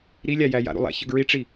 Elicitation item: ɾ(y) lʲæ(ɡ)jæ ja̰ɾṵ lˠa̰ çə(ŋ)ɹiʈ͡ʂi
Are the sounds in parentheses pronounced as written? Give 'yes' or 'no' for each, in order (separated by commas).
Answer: no, no, no